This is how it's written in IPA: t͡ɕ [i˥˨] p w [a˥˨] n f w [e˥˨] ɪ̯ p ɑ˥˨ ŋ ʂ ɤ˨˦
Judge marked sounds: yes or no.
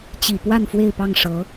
no, yes, yes

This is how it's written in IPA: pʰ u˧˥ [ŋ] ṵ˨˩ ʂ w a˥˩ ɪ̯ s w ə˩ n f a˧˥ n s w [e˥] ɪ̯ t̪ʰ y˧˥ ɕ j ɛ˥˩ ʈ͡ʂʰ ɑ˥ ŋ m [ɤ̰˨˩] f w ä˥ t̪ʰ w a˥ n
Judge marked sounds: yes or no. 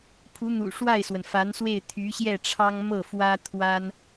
no, no, no

